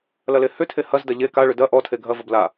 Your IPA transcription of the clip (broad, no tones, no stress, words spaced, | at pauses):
lɐlehʏ tʰehɐzdɐ ʎe ka ɭʏdɐ ʔɔtʰe ɡʱɐvʌb la